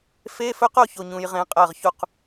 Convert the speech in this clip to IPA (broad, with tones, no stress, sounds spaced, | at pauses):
f e˧˥˧ f ɵ˦˥ q o˥˨ ç o˨ ɲ ũ˨ j ʁ ẽ˦˥ qʼ ɜ˥˨ ʁ ç u˥˨ q